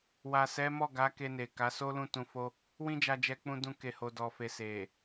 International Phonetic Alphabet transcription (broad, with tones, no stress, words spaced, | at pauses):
wa˨sɛ˨˦mɔ˦˨ɡa˨˦ ke˧ne˨ ka˨˦ so˦lũ˦˨tũ˧fo˦ | wĩ˦d͡ʒa˧d͡ʒɛ˧ k͡pũ˧dũ˧ ke˨ho˨ dɔ˨fe˨ se˨